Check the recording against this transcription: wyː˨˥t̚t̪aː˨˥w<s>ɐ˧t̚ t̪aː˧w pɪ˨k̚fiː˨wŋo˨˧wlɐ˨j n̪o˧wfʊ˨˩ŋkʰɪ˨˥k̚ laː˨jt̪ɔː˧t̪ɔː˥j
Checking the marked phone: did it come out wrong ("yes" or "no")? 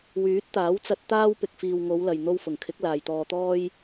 yes